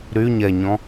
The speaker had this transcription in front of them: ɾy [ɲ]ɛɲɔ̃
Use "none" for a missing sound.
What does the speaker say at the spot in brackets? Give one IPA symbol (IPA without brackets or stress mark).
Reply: ɲ